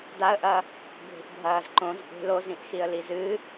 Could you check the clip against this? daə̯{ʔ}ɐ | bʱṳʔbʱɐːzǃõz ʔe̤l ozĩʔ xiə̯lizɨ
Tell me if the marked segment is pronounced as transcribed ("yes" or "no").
yes